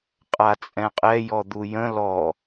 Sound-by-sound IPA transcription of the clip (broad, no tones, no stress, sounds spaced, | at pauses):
qʼ a t͡sʼ ɛ̃ qʼ ɛ j ɔ d̪ u j ə̃ l ɔ